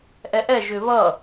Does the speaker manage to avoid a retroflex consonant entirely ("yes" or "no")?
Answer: yes